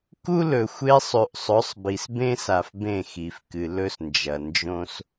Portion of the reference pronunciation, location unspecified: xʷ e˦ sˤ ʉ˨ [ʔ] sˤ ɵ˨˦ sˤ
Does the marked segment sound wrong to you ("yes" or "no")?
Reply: no